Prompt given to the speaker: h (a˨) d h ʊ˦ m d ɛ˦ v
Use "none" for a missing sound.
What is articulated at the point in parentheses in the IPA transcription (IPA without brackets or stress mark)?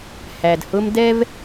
æ˨